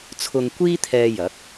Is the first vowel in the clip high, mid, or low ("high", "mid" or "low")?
high